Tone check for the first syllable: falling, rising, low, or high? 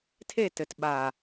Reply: falling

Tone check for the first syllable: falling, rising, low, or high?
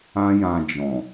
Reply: high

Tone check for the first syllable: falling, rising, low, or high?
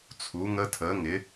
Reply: rising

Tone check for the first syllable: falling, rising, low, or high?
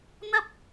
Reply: high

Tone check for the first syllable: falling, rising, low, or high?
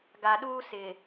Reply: low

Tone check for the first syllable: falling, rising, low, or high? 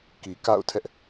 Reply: low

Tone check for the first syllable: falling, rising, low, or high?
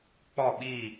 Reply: falling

